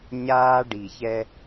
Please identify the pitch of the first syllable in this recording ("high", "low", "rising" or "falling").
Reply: high